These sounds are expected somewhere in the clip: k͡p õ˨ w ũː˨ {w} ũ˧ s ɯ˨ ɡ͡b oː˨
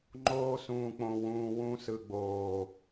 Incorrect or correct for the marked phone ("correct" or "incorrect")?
correct